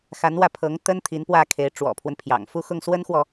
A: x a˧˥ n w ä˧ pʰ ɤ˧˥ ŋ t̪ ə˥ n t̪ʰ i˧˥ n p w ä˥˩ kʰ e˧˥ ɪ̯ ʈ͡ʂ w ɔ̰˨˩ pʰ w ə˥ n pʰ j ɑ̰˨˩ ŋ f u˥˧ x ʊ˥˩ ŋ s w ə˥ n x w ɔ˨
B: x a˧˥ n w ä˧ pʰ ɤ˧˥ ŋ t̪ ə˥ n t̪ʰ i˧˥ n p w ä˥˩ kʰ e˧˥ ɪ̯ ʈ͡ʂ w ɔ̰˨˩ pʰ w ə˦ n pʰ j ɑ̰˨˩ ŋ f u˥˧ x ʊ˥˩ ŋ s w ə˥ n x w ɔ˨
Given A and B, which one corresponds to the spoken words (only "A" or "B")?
B